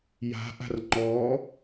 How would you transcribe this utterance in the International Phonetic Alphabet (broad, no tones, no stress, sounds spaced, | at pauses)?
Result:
j a̤ ʔ a̤ r ŋ͡ǃ ɔ